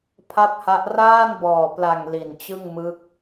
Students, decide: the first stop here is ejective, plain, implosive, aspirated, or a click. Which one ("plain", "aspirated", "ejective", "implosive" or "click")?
aspirated